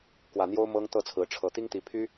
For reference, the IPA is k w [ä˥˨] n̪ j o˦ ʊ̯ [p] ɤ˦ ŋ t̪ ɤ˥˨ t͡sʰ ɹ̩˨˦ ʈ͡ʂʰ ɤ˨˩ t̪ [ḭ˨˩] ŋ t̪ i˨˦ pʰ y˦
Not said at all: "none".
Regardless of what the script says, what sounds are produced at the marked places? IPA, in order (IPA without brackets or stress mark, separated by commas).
ä˨˩, m, i˦